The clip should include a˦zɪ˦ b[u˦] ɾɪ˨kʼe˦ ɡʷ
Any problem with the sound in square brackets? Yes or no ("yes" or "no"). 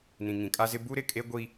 no